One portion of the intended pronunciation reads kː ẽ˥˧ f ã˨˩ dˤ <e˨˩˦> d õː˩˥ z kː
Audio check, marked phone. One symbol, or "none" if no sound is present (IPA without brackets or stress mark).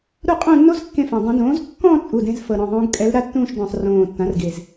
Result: ẽ˨˩˦